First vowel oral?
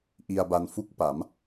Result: yes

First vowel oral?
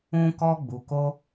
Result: no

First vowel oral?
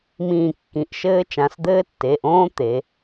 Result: no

